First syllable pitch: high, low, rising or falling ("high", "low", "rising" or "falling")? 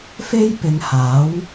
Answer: high